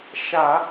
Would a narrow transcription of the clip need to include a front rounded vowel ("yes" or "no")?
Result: no